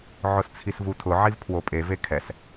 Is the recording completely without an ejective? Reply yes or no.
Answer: no